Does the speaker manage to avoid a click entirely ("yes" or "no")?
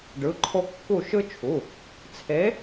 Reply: no